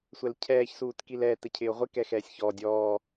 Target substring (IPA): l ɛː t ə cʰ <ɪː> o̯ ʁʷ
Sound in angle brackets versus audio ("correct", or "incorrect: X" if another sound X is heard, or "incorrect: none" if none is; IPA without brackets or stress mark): correct